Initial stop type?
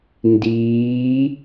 plain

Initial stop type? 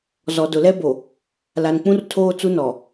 plain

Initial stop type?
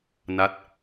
plain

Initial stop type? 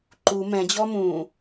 click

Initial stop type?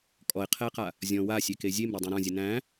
ejective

